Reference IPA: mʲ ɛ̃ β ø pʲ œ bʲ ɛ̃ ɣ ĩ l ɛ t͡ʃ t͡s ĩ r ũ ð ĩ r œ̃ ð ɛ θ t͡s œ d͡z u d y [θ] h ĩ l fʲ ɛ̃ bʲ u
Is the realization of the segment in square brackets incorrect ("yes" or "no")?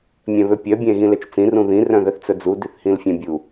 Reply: no